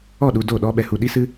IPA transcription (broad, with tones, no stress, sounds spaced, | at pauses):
ɔ˦˨ ɗ u˧ d o˦˨ ɗ ɔ˦ ɓ ɛ˨ h u˧ ɗ i˦ s ɨ˦